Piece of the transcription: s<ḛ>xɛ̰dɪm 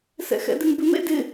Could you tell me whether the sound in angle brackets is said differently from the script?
yes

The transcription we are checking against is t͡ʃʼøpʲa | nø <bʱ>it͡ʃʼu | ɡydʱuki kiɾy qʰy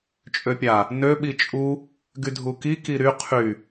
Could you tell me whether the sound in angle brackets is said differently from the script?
yes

